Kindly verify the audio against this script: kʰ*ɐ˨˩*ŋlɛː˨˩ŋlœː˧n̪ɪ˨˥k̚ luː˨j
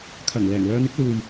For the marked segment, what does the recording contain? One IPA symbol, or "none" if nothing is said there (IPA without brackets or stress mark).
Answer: ɐ˨˩